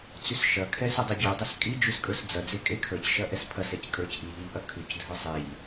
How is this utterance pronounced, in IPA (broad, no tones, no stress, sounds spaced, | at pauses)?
t͡s ʉ s ʃ ɐ kʰ ɛ s ɐ dˤ ɐ ɟ ʉ dˤ ɐ s kʼ i d͡ʒ ʉ s kʼ ə˞ s d͡z ɐ d͡z e kʼ e kʰ ə˞ c ʃ ɐ ʔ ɛ s pʰ ɐ s ɛ c kʼ ə˞ c ʔ i ʎ i ʎ ʔ ɐ kʰ ʉ c dʱ ə˞ sˤ e ʎ